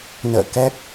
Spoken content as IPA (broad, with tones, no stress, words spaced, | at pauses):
nə̰ː˧˨ kɛ˦˥k̚